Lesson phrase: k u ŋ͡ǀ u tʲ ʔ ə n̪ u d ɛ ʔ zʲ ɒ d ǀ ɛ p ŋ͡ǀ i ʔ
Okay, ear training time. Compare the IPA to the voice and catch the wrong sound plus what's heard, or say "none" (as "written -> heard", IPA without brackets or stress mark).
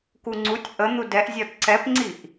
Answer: none